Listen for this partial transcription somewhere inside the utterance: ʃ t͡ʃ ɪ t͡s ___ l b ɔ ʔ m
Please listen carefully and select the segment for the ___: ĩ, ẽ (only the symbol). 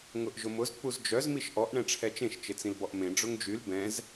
ĩ